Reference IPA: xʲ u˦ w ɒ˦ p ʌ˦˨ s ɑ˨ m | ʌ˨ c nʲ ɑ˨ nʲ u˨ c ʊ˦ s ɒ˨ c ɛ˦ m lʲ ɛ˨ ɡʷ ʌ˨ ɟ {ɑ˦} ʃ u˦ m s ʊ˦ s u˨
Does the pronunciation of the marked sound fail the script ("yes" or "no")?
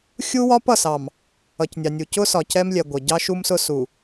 no